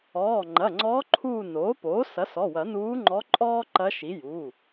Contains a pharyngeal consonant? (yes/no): no